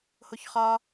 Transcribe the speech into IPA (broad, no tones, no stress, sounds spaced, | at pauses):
h o ç χ ɒ